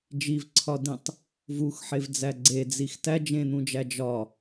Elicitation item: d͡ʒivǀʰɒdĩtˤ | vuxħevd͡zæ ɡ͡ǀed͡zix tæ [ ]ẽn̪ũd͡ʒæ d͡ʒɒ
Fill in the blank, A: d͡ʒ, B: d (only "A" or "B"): A